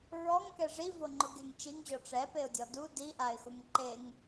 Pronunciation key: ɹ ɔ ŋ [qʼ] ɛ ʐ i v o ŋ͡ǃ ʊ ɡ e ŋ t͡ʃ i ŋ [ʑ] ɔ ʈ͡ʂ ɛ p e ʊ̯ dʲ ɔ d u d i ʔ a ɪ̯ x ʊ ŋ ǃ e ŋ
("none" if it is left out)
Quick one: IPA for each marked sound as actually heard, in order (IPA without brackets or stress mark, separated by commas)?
k, ʑ